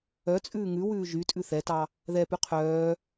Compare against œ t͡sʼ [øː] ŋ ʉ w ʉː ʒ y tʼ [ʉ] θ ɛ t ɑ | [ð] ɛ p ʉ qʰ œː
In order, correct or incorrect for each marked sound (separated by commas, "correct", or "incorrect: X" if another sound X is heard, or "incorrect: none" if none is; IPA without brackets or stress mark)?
incorrect: ʉː, correct, correct